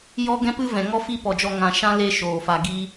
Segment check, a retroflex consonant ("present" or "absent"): absent